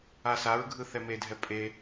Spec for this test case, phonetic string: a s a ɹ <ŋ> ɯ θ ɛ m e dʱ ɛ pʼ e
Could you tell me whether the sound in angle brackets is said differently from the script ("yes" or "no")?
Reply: yes